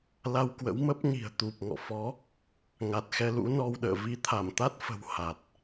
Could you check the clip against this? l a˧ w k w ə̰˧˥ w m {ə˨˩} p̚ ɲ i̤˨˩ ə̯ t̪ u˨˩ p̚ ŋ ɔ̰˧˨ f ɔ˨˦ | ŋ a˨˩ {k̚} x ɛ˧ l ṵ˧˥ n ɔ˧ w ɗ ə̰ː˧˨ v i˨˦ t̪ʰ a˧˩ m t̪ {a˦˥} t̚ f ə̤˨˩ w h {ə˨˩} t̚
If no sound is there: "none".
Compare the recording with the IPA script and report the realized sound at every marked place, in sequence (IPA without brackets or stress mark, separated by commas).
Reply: ə˦˥, t̚, a˦˥, a˨˩